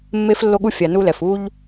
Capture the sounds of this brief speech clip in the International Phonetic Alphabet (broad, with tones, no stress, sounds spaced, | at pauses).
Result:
mː e˦ f lː o˦ ɠ u˦ fʲ a˨ n u˦ l ɛ˨ f u˦ ʎ